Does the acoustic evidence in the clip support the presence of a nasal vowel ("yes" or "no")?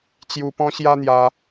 yes